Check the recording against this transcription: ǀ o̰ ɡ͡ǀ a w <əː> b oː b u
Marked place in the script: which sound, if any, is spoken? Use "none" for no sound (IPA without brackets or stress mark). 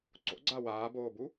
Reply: aː